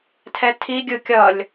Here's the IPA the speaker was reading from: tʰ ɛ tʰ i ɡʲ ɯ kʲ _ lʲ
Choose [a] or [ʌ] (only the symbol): ʌ